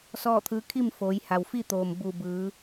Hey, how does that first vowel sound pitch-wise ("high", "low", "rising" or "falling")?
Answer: falling